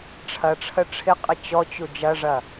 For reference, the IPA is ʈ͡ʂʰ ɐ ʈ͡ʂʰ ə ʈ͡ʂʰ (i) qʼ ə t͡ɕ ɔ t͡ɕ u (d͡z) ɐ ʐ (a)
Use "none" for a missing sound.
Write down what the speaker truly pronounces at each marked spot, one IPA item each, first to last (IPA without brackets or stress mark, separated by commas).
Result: ɪ, d͡ʒ, ɐ